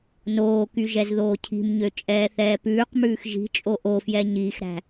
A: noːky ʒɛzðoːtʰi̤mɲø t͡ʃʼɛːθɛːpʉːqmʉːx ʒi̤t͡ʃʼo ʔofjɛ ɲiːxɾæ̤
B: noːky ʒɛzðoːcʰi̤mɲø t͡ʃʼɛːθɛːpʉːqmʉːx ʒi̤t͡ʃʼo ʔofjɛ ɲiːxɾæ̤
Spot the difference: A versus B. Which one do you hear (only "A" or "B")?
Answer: B